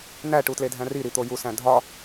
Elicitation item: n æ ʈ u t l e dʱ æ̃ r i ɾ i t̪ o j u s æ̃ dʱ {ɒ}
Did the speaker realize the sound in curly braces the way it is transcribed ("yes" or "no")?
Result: yes